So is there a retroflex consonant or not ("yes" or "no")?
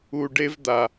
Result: yes